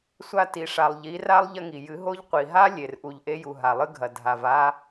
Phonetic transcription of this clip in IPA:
sʷa˧ti˨ʂa˨lˠ ʎi˨˦ra˦lˠ ʎɐ˧ŋi˨jɨ˨˦ɦo˦ʎ qʷi˨ɦa˦ lʲe˨r ʔu˨ʎʔe˧ju˨ ɦa˨lˠɨ˧ɡʱɐ˨ dʱa˨v a˧

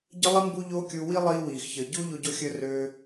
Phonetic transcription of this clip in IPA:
ɟə˦lˠi˦ mbu˦ʎoː˦kʲu˧ wi˦lˠiː˧ wiː˨xçəː˨ ɟuː˦ʎo˧ɟo˧ xʲəː˧røː˧

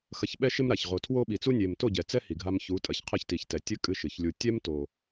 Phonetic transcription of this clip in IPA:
xɐ˧çɓɛ˦ʃe˦mɾa˨ç ʁo˨tʰwo˧ɓi˨t͡su˧ nʲe˨mto˦˨ɟɛ˨ t͡sɛ˦hi˨ɡʱa˧m çu˨˦tʼɐ˨ç qʰɘ˦˨çti˨çtɛ˨ tʲɘ˧ kʼɨ˦ʃɨ˨çlʲu˧ tʲɛ˦m to˨

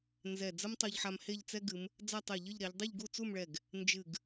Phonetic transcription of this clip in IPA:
nzɛ˧˩ d͡zɐ˥mtˤo˧ʎħa˧m he˥˧ʎt͡sɛ˥ɡɨ˩˧m | d͡za˥˧tˤe˧˩ʎɨ˥˧ʎɾɛ˩˧ʎ dˤɨ˥˧ʎɡu˥˧t͡su˥˧mɭɛ˧˩ɡ | nd͡ʒɨ˧˩ɡ

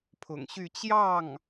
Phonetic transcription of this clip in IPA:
pʰʊ̰˨˩ŋɕy˥˧ t͡ɕjɑ˥˩ŋ

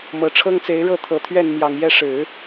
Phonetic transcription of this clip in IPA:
mɤ˨˩ʈ͡ʂʰɤ˥ŋt͡se˧˥ɪ̯ ɻɤ˥˩t̪ʰɤ˨˩t̪ʰɥɛ˥˩n mjɑ˨˩ŋjɛ˥˩ ʂɻ̩˨˩˦

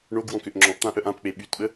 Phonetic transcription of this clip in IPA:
ɳoɡwɔ̃ køʔŋ͡ǁɔ̃ʔt̪ã ʔœʔãpk͡pe ɓytɓə

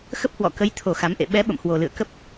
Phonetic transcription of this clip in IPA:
xə˦˥p̚hwɔ̰˧˨kə˨˦jt̪ʰo˨˩ xa˨˦m ʔḛ˧˨ ɓɛ˨˦ ɓə̰˧˨mhwo˨˩lɨ̰˧˨ə̯ kə˦˥p̚

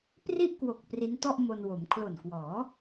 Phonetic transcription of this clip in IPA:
pri˥˩ʔkwo˨˩k̚ pri˦˥ntɔ˥˩ʔmo˧nwo˩˦m kʰlo˨˩nkwɔː˩˦

